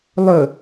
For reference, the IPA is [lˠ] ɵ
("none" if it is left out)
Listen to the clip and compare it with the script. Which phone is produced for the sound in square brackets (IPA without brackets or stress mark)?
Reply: lˠ